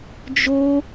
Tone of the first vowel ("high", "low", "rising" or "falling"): high